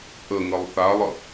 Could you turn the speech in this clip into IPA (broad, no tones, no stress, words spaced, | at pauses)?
ʔə ŋəlˠθalˠə